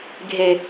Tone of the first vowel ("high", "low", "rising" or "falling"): low